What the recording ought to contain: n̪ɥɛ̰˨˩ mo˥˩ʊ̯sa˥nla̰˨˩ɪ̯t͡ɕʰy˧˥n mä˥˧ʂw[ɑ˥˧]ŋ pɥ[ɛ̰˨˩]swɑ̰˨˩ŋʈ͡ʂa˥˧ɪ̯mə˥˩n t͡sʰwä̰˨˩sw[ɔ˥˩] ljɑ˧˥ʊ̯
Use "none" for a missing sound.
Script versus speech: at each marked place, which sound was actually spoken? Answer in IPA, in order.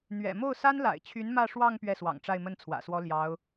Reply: ɑ˥˧, ɛ˥˩, ɔ˥

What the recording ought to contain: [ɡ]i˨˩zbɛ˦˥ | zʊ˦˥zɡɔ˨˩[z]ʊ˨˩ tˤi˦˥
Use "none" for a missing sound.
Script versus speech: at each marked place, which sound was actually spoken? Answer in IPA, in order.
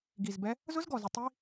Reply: ɡ, z

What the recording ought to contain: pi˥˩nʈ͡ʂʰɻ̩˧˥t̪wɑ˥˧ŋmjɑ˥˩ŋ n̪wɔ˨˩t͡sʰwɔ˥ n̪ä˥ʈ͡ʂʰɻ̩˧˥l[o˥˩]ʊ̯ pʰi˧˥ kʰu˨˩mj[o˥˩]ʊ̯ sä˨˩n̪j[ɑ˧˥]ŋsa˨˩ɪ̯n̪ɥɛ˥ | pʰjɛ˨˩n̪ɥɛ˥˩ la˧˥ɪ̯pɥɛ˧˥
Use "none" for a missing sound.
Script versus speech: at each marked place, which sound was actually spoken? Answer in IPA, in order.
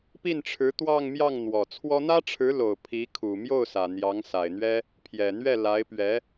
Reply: o˨˩, o˥˩, ɑ˧˥

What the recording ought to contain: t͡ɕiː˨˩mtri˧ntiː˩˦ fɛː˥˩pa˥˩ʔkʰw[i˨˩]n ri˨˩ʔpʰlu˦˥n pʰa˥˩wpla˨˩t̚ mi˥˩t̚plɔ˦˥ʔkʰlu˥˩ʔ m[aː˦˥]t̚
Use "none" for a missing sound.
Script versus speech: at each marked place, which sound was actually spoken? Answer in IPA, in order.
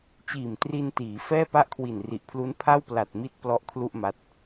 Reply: i˨˩, a˦˥

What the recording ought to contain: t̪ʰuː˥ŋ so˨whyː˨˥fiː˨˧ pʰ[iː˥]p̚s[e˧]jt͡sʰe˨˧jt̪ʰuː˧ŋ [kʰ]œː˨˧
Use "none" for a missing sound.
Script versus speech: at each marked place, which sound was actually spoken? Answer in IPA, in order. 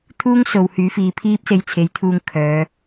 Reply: iː˥, e˧, kʰ

